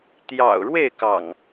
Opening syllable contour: low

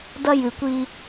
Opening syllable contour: high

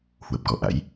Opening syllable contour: low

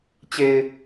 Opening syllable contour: low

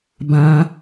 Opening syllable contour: high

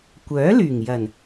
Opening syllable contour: rising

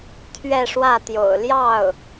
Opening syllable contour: falling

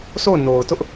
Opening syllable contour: falling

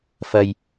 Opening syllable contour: low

